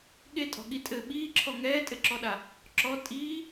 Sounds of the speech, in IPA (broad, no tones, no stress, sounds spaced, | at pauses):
ɠ e tʼ ɔ̤ ɠ i tʼ ɘ ɓ iː ǁʰ ɔ ŋ ɛː tʼ ɘ ǁ ɔ ɗ a | ǁ ɔ tʼ iː